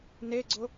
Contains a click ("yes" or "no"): yes